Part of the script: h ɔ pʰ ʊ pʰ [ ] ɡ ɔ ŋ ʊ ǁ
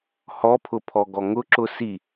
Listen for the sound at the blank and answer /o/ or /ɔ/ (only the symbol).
ɔ